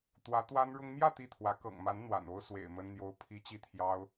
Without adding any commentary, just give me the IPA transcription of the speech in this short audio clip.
t̪ w ä˧˥ t̪ w a˥ n ɻ ʊ˥ ŋ m j ä˥˧ t̪ i˥˩ t̪ʰ w ä˧˥ k ɤ̰˨˩ ŋ m a˧˥ n n̪ w a̰˨˩ n o˥ ʊ̯ s w ḛ˨˩ ɪ̯ m ə˥ n n̪ j o˥ ʊ̯ pʰ i˥ t͡ɕ i˥˩ t̪ʰ j ɑ˥ ʊ̯

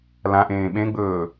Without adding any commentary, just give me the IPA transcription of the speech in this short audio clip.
l ã ʔ ẽː ɓ ẽ ɡ͡b ɵː

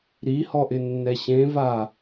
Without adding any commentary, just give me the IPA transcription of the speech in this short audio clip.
ɾ i h ɔ ʔ ɪ nː ɛ ɕ ẽ v a

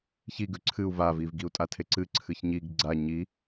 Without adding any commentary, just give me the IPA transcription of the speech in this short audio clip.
ç i ɡ ʉ ǀʰ ɨ u̯ v a v i v ɡ i u̯ tʼ a tʰ e ǀ ɨ ǀʰ ɨ ç ɲ i ɡ ɡ͡ǀ a ɲ i

